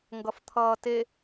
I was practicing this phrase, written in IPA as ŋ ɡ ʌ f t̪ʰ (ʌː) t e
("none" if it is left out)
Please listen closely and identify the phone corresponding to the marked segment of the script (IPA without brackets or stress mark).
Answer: ʌː